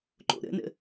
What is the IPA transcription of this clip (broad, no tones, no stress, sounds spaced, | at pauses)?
ǃ o̰ ɾ ə̰ n ə̰